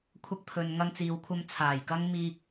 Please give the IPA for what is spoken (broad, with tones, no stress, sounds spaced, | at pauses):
kʷʰ ɐ˧ k̚ pʰ ɵ˨ n ŋ ɐ˧ ŋ t͡s iː˨ w kʷʰ ɐ˧ m t͡sʰ aː˨˩ j k ɐ˥ ŋ m iː˧ k̚